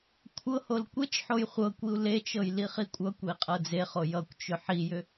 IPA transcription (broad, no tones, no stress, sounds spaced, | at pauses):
kʷʰ ɤ h o l kʷ e t͡ʃ ħ o j χʷ ɤ kʷ i u̯ l e t͡ʃ ɤ j l i χ i kʷʼ ʌ kʷ e i̯ qʼ ɤ d͡z e χ o j ʌ kʷ t͡ʃ ʏ ħ i j ʏ